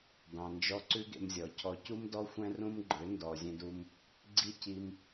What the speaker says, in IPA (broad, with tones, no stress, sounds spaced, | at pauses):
d ɑ̃˨ n d͡ʒ ɔ˧ ǀ ʉ˦ ɡ ḛ˧ m zʲ ɔ˨ cʰ ɔ˧ c u˦ m d ɔ˦ xʷ ɛ̃˦ r ũ˦ m ɡ͡ǃ ø˨˦ n d ɔ˨ zʲ ɛ̃˧ d u˧ m | ɡ͡ǀ i˦ c i˧ m